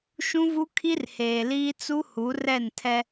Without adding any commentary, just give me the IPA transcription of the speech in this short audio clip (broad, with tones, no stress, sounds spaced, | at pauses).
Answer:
ʃ ũ˦ v u˦ kʰ i˦ r h eː˨ l iː˦ t͡s u˦ h u˨˦ r ɛ˦˨ n tʰ ɛ˦